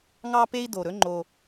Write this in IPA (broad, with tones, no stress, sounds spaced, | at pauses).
ŋ ɑ˦ p e˦ i̯ d o˨ ɾ ɵ˦ ŋ͡ǃ o˦